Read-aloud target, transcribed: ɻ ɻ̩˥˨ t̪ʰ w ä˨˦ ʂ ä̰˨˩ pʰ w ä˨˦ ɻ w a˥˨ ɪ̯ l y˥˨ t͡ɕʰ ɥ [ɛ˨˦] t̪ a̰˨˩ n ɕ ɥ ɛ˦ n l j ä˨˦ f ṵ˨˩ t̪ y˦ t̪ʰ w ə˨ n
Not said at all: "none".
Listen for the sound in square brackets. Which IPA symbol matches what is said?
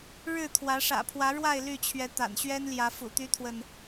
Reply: ɛ˨˦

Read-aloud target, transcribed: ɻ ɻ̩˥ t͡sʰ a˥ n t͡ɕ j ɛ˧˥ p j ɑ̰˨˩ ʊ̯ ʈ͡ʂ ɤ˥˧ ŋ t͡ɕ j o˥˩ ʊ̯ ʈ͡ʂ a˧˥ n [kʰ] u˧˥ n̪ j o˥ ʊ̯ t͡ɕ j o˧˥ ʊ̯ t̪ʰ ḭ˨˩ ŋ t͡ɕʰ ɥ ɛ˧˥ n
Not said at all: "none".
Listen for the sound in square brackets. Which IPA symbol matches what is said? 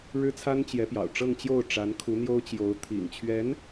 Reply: kʰ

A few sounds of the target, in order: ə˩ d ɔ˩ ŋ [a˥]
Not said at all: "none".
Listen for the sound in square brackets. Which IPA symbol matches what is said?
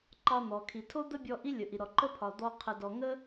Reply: ə˥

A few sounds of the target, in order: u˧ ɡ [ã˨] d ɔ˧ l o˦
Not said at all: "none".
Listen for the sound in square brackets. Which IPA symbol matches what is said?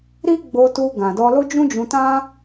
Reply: ã˨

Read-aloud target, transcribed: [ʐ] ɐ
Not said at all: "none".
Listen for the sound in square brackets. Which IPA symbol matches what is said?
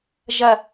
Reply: ʒ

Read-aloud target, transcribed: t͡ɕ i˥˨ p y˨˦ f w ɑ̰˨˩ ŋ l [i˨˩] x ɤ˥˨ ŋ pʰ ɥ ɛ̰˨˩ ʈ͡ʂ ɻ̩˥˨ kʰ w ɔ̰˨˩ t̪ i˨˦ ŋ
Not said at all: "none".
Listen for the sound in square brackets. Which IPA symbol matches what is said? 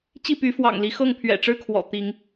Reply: i˨˦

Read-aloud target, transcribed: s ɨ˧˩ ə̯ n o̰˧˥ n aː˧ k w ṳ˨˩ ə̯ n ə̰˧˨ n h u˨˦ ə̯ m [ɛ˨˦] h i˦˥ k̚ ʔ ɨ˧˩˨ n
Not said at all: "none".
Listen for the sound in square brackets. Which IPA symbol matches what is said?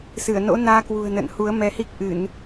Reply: ɛ˨˦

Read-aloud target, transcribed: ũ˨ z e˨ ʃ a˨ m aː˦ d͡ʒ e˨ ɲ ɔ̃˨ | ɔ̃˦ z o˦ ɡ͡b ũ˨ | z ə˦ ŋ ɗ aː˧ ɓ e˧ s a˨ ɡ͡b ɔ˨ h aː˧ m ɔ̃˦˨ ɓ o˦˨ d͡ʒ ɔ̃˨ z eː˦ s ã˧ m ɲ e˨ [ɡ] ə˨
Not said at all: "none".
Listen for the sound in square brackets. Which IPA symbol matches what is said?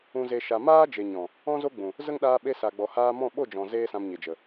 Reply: d͡ʒ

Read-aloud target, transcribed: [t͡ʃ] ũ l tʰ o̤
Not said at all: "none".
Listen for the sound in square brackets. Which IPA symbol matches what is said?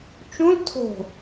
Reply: t͡ʃ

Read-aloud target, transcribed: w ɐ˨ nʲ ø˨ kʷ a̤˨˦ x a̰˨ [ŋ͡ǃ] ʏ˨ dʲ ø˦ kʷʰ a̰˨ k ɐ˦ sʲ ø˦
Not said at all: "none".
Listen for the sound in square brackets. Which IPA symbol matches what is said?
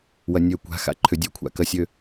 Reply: ǃʰ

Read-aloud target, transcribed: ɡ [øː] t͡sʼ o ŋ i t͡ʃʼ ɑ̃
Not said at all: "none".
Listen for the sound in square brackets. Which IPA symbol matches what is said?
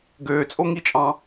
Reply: øː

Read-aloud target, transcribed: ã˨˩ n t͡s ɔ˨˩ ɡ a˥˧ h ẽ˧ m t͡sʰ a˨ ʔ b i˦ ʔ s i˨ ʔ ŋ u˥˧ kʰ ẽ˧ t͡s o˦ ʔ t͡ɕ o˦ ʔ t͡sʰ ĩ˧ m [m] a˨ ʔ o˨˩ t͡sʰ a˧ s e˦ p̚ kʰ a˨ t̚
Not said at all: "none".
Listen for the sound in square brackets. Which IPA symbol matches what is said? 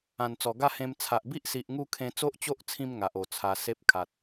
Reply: ŋ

